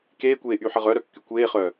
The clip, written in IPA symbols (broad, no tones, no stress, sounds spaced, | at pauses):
k eː kʷ eː ʔ y ħ ə ʁ œ ɾ œ kː y kʷ eː χ œː